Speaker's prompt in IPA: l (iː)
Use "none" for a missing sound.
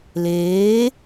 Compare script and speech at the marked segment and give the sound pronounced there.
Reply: eː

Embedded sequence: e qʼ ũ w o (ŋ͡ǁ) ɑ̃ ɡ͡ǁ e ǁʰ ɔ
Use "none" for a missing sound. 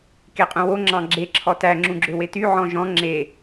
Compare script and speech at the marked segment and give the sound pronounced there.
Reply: ŋ͡ǁ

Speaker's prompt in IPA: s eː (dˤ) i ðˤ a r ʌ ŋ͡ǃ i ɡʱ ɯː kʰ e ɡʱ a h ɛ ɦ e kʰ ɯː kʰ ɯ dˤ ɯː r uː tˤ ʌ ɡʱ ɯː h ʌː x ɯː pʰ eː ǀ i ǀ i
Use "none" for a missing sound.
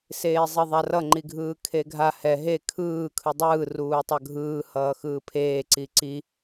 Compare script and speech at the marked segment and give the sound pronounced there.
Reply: zˤ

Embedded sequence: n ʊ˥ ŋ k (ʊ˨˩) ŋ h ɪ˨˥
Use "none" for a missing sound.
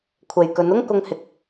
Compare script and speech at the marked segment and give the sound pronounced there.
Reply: ʊ˧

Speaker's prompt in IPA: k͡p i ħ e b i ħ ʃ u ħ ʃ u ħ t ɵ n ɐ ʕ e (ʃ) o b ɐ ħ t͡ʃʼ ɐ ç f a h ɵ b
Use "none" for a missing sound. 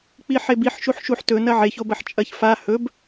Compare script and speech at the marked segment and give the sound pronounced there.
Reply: ç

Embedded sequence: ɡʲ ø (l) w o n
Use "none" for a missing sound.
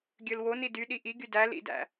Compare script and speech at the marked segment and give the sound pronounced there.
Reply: l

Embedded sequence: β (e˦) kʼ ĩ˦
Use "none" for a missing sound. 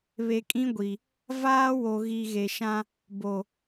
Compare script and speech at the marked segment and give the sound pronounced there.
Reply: e˨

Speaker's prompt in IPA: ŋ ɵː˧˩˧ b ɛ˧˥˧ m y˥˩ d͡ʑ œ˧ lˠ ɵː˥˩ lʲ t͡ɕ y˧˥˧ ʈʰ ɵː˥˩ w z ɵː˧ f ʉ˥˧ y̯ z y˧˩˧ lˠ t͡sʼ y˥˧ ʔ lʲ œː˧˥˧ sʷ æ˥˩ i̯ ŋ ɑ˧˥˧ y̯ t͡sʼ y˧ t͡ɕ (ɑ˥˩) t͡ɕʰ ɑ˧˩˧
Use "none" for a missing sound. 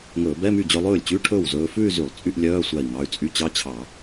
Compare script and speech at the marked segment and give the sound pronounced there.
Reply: ɑ˧˥˧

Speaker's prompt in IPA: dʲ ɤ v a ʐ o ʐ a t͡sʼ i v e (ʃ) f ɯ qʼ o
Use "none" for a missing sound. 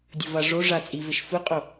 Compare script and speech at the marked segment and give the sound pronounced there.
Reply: ʃ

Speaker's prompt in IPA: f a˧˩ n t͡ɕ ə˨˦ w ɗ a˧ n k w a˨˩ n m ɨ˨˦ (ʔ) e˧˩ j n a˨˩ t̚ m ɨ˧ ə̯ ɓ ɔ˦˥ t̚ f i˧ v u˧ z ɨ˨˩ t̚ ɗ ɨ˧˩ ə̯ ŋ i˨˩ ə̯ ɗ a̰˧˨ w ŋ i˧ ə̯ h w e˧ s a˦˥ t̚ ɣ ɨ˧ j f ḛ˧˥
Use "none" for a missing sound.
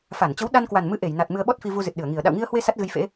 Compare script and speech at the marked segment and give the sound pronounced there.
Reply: ʔ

